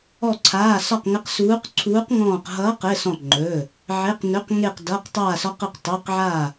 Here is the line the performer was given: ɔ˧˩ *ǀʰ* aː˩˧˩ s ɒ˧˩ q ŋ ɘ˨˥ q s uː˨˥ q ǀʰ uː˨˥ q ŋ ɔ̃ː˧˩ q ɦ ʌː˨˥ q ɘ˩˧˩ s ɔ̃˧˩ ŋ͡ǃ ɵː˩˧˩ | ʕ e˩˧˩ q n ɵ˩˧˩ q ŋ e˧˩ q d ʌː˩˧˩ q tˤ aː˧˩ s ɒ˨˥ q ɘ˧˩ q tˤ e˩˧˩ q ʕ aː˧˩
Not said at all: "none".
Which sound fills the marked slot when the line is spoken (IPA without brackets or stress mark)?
ǀʰ